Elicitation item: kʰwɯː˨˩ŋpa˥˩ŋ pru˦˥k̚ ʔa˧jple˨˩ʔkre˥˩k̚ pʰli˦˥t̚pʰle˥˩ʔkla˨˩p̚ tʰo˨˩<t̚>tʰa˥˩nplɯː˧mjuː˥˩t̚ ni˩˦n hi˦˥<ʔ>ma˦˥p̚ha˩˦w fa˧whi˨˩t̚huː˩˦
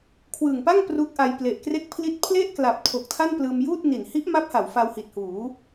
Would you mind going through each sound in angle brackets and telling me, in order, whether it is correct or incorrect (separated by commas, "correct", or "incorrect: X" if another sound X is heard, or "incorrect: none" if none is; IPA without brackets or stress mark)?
incorrect: k̚, correct